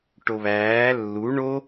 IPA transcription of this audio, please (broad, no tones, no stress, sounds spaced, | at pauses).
ʈ o β æː lː u ɳ o